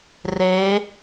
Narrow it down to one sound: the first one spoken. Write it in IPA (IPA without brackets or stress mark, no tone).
r